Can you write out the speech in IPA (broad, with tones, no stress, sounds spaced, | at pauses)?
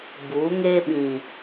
b uː˨˦ ŋ eː˦ ɓ ĩ˨